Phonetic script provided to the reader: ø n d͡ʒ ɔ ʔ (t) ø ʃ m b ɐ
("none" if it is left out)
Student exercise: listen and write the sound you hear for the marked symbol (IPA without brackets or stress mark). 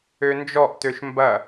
t